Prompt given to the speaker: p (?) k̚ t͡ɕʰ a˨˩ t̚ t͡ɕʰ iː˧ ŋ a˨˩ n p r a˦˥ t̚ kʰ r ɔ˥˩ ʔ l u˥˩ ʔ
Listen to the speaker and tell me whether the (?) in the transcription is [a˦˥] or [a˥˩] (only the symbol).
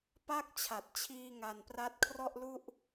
a˥˩